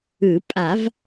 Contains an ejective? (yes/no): yes